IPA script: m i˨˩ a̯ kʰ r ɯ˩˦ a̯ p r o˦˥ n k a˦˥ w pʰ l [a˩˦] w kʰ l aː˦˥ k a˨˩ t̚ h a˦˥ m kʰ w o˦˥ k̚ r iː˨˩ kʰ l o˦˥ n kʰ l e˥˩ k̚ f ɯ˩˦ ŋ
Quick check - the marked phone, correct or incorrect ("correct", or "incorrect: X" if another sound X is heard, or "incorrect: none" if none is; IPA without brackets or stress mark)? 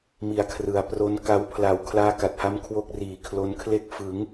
correct